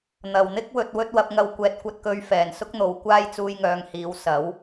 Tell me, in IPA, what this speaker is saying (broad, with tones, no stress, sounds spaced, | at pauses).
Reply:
n̪ ɐ˨˩ w n̪ ɪ˥ k̚ w ɵ˨ t̚ w ɵ˥ t̚ w ɐ˧ p̚ ŋ ɐ˧ w kʷ ɛː˨ t̚ kʷ ɐ˧ t̚ k ɵ˧ ɥ f ɛː˨˩ n s ʊ˥ k̚ n̪ o˨ w kʷ aː˥ j t͡s uː˧ j ŋ œː˨˧ ŋ h iː˨˧ w s ɐ˨˥ w